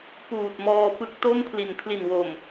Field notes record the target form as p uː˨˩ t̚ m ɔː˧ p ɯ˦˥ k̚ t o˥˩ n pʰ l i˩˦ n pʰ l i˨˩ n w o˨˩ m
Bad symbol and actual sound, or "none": none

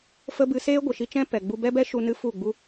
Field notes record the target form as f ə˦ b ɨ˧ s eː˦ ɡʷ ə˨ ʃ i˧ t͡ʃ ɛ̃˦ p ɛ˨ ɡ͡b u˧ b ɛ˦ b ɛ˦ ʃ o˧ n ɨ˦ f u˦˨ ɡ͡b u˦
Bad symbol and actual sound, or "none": o˧ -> u˧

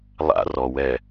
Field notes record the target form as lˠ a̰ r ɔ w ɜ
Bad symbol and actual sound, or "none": ɜ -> ɛ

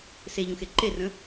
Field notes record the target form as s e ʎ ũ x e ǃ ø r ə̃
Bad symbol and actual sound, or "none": ø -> e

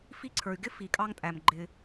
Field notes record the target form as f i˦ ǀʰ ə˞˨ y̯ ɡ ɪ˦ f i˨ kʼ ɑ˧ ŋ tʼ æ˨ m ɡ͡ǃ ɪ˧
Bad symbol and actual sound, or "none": none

